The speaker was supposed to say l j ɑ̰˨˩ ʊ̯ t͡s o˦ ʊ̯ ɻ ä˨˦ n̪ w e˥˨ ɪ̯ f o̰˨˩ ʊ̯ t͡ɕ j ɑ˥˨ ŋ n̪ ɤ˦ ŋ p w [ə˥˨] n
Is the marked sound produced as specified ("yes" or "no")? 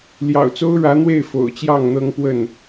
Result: yes